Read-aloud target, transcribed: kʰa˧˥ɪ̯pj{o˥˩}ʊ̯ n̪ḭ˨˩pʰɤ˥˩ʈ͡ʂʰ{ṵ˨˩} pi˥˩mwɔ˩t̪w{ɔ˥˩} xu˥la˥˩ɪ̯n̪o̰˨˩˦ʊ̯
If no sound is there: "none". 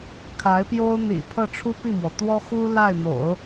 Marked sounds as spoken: o˥, u˥, ɔ˥

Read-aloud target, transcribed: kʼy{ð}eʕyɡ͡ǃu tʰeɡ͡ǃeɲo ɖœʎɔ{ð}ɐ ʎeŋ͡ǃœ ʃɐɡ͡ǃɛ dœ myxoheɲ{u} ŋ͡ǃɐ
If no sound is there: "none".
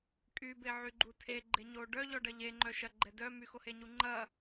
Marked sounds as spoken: b, ɖ, u

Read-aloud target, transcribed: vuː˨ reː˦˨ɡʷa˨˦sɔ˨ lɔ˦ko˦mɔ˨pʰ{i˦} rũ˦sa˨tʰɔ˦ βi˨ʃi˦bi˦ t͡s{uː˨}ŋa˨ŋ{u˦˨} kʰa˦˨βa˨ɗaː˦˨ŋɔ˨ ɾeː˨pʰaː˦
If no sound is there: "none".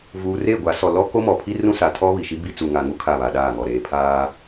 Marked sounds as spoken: i˦, u˨, u˦

